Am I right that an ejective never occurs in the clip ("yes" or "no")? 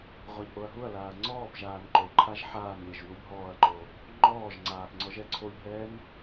yes